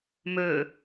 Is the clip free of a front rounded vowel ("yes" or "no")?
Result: no